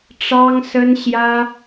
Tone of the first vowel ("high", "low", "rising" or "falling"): high